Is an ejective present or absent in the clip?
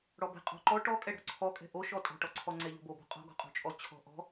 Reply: present